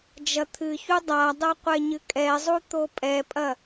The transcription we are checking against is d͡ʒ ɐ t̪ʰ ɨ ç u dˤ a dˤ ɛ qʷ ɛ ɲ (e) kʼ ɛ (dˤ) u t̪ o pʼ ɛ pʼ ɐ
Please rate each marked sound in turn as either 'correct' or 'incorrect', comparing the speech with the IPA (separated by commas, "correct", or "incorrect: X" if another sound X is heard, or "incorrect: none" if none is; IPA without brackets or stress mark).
incorrect: ɨ, incorrect: zˤ